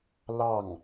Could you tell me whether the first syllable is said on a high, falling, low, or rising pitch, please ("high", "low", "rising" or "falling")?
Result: falling